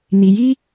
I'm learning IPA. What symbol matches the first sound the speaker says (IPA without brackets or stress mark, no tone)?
n